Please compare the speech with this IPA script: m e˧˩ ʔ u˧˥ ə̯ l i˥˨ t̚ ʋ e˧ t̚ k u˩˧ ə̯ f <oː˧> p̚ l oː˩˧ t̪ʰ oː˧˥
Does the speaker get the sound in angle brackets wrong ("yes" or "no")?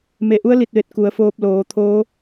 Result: no